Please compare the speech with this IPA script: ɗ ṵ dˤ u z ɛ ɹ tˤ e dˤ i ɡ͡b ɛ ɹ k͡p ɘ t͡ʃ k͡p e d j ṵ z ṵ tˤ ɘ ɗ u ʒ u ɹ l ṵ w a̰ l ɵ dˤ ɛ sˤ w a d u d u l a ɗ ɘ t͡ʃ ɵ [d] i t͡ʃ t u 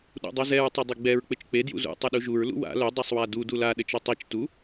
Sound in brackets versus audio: incorrect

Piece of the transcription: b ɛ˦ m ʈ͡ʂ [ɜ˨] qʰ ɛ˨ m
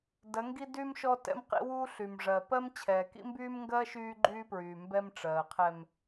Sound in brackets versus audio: incorrect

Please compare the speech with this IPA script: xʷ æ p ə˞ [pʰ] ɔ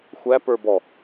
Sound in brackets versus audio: incorrect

